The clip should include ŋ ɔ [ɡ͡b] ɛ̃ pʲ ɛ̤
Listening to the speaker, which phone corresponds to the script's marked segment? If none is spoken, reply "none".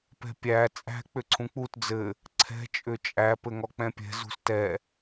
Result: k͡p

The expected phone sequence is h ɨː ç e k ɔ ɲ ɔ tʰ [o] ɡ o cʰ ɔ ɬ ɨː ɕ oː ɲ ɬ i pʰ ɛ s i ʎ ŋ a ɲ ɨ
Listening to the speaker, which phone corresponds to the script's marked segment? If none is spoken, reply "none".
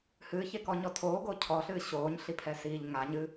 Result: oː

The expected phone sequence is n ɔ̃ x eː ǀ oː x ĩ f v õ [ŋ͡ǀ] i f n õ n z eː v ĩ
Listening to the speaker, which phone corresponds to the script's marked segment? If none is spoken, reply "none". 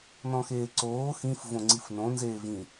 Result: ŋ͡ǀ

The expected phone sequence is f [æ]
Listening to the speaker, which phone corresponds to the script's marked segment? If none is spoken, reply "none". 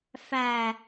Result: æ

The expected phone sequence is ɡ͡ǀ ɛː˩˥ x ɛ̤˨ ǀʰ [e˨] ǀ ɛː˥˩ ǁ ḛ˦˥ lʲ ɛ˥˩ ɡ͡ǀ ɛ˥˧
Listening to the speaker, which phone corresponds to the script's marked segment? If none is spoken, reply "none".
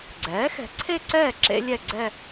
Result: e˥˧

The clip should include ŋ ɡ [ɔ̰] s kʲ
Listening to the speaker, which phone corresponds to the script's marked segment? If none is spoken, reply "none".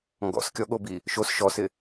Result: ɔ̰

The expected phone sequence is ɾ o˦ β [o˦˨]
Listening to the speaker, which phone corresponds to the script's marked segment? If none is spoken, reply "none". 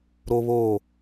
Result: o˦˨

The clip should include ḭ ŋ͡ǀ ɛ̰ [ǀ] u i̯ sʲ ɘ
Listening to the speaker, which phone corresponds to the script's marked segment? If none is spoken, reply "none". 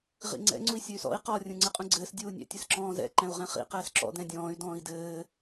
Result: ŋ͡ǀ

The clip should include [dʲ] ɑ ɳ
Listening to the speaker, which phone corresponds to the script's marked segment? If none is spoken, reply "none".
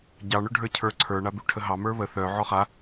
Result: ɟ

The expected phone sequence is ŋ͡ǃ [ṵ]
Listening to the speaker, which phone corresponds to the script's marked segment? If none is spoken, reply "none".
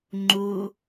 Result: u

